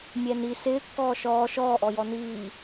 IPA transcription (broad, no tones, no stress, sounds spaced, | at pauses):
mʲ ɛ n i s ɪː kː ɔː ʃ ɔː ʃ ɔː ʔ ɔ j ɔ n iː